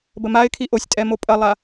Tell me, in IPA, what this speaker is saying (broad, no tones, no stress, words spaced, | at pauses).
bəmaɪ̯kʰi ʔosʲtʼɛ mopʼɐlˠa